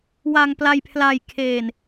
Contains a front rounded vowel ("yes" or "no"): no